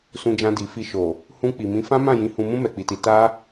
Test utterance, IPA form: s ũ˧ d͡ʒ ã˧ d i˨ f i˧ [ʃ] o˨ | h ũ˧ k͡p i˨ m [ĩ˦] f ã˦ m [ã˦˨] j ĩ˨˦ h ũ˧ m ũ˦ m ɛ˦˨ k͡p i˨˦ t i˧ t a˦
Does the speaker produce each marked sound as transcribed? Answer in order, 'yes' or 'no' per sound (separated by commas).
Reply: yes, no, yes